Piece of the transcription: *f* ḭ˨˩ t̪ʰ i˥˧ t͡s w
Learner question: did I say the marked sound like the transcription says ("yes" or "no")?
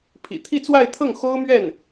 no